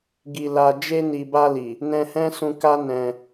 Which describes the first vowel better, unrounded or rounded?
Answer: unrounded